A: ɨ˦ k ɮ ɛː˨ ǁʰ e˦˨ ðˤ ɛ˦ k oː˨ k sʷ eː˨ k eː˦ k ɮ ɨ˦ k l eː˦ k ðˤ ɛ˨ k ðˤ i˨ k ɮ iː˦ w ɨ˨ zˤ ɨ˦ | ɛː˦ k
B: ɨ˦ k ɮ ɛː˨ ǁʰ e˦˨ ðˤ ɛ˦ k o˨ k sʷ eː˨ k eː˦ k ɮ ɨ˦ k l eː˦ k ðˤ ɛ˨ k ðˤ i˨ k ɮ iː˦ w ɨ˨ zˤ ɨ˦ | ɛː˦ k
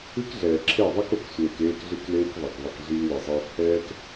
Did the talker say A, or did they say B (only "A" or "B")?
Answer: B